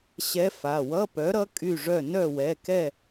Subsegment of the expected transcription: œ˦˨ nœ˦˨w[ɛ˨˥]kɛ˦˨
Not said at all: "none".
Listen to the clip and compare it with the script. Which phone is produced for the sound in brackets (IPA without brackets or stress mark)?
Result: ɛ˩˧˩